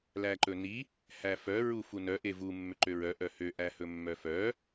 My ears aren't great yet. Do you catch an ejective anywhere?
no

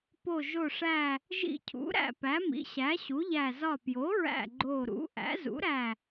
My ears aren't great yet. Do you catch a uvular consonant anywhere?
no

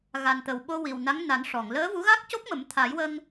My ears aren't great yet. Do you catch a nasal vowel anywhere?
no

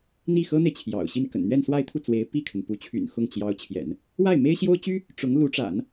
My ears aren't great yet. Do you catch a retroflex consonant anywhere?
yes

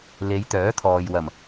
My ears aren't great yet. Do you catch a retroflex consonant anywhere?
no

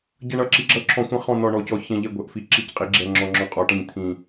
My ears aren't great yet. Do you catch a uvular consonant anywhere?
yes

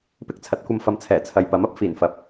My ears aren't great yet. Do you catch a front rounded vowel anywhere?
no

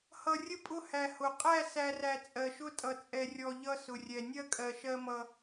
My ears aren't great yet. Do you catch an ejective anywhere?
yes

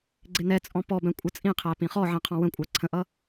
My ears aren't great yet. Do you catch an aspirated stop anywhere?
yes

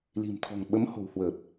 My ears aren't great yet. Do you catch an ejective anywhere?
no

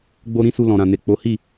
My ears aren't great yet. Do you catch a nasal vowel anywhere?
yes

